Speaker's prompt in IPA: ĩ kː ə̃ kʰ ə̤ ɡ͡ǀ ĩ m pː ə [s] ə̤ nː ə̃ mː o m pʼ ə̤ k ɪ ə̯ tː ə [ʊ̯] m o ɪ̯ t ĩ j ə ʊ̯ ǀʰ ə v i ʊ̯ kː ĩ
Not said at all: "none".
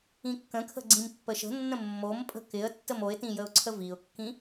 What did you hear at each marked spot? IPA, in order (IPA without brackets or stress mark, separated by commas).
ʃ, none